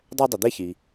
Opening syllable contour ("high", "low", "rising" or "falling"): high